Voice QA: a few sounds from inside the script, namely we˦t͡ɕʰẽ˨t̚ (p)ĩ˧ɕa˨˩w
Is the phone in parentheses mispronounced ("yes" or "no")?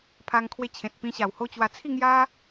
no